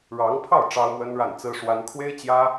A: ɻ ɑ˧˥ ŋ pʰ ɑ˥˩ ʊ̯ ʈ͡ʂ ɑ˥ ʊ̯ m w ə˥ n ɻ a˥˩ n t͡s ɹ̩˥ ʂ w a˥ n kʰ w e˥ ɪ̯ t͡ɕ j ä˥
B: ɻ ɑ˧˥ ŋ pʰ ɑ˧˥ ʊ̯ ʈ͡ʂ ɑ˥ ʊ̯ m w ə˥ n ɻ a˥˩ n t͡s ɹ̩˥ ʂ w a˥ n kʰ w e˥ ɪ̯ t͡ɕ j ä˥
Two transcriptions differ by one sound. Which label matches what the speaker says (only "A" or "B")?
A